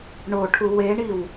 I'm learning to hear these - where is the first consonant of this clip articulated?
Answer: retroflex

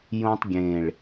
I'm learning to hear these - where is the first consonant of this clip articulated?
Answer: palate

